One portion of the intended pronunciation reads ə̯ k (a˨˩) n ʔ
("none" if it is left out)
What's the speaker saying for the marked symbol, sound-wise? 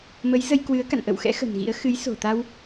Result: a̰˧˨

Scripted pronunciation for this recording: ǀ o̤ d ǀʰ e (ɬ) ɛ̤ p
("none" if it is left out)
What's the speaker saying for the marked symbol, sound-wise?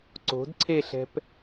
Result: ɬ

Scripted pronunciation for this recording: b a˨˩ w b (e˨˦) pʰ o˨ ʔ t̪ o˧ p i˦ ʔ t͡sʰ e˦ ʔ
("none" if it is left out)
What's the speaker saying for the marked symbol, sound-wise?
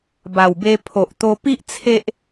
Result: e˧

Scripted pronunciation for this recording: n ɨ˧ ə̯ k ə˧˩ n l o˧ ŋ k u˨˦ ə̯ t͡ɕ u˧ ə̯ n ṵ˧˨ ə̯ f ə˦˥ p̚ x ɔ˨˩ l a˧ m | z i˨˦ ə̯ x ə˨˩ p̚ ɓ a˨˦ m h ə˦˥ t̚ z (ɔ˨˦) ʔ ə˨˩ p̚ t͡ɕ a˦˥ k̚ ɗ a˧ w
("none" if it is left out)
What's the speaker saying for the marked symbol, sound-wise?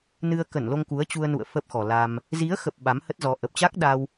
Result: ɔ˨˦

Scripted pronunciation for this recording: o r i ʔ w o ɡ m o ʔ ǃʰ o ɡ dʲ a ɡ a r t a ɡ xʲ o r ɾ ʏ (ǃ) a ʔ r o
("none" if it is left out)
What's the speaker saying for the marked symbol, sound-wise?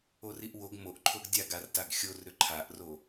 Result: ǃʰ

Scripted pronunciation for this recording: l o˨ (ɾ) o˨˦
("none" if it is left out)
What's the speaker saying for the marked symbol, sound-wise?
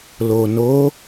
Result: n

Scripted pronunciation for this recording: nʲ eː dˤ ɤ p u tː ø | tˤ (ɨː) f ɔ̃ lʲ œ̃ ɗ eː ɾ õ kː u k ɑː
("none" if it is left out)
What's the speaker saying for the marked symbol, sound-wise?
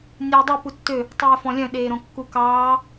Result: ɛː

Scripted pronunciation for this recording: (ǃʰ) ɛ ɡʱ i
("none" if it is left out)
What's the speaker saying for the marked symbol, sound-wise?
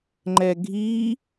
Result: ŋ͡ǃ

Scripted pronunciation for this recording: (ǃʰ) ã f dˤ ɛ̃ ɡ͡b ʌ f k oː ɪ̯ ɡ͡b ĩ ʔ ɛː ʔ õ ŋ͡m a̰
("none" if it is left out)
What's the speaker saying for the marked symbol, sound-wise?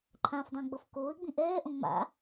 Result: ǃʰ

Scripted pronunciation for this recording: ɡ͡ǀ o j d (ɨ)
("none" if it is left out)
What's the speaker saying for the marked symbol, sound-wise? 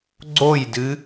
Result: ɨ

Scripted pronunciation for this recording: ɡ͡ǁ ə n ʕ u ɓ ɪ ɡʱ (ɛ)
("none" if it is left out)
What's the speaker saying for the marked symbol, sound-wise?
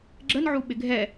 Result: ɛ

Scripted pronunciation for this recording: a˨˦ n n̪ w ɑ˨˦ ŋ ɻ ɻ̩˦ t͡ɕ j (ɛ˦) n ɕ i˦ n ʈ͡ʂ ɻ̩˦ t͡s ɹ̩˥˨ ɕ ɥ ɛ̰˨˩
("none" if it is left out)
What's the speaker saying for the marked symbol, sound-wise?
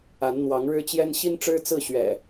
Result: ɛ˦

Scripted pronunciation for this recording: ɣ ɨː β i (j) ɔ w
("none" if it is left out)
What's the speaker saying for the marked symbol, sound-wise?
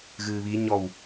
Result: ɲ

